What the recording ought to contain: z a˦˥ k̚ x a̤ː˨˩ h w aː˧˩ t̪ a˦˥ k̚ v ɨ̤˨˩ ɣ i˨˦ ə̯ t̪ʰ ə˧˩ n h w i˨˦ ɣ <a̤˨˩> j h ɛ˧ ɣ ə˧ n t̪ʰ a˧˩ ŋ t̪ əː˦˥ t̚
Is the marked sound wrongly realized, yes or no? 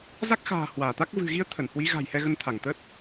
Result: no